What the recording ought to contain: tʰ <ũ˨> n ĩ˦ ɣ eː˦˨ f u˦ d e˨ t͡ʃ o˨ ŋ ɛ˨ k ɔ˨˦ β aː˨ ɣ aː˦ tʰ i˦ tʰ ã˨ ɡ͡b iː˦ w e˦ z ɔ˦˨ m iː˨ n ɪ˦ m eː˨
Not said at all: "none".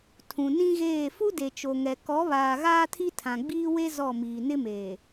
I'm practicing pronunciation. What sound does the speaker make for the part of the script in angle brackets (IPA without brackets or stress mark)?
ũ˨